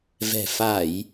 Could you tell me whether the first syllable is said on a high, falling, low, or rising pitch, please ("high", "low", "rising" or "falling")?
low